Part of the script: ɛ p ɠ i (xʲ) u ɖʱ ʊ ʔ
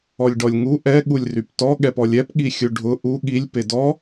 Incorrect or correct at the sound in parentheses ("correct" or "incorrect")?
correct